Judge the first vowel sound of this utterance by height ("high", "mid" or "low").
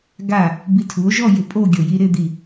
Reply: low